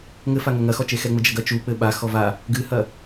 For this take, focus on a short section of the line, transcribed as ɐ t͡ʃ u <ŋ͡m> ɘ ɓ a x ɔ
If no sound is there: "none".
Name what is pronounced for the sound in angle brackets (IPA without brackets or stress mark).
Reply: k͡p